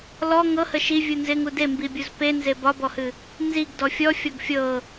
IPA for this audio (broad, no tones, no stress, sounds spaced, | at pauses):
l ɔ ŋ ɤ h ə ʃ i vʲ u n z ɪ ŋ u d e m b i bʲ u z p e n z e b ɒ b ɔ h ɨ | n z i ɡ d ɔ fʲ ɔ fʲ ɔ ɡ fʲ ɤ